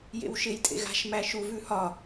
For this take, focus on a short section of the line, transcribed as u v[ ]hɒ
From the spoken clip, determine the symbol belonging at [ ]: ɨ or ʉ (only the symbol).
ʉ